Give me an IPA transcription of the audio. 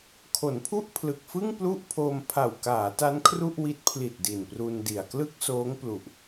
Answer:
kʰ o˩˦ n pʰ u˥˩ ʔ pʰ l ɯ˨˩ k̚ f ɯ˥˩ ŋ p l u˥˩ ʔ pʰ oː˧ m pʰ a˨˩ w k aː˩˦ t a˦˥ n kʰ r u˥˩ ʔ w i˦˥ t̚ pʰ l i˨˩ t̚ d i˨˩ n p r u˧ n d i˨˩ a̯ k l ɯ˥˩ k̚ s oː˦˥ ŋ p l u˨˩ ʔ

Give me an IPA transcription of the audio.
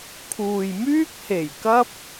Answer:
kʰ uː˨ j m yː˥ k̚ h e˨˩ j k ɐ˥ p̚

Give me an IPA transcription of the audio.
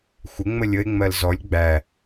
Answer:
xʷ ɪ ŋ͡m ə lʲ ə e̯ ŋ͡m ɜ l z ɔ lʲ ɡ͡b æ

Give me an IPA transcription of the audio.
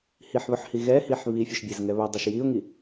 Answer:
h i ħ β ɵ ħ h i ɣ ɛ h i ħ β i fʲ ɵ ʃ bʲ ɛ z ŋ ɛ β ɵ dˤ ɵ ʃ j i ʊ̯ ŋ i

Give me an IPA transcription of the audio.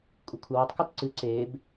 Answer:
kʷʼ ɘ kʷʰ ɘ w ɛ tˤ k u t ǀ ɨ ǀ e b

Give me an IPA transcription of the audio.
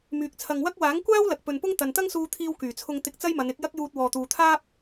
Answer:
m yː˨ k̚ t͡sʰ ɐ˨ ŋ w ɐ˥ k̚ w aː˨˥ ŋ kʷ aː˥ w l ɐ˨ k̚ p ɵ˨ n p ʊ˥ ŋ t̪ ɐ˨ n t̪ ɐ˥ ŋ s uː˧ t̪ʰ iː˧ w k yː˨˩ t͡sʰ ʊ˧ ŋ t̪ ɪ˧ k̚ t͡s ɐ˥ j m ɐ˨˧ n ɪ˨˥ k̚ j ɐ˥ k̚ j uː˧ t̚ w ɔː˨ t̪ uː˨ t̪ʰ aː˥ p̚

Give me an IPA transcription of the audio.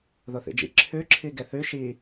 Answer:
ð o θ ḭ d͡ʒ ḭ ǁʰ ʉ ǁʰ i ɡ e θ ʉ ʃ i

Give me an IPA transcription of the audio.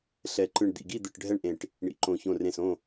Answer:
ɬ ɛ˧˩ ǃ ɯ˧˩ ɳ d̪ ḭ˧˩ ɡ i˥˨ d̪ ɯ˧˩ ʈ ɖʱ ɛ˥˨ ɳ ʔ ẽ˧˩ ʈ | ɳ ḭ˧˩ ǃ õ˧˩ ç õ˧˩ r ẽ˧˩ s õ˥˨

